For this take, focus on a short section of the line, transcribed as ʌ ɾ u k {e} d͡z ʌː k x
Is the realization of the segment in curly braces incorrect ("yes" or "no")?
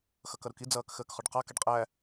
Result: yes